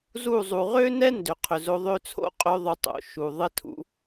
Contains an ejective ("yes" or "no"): yes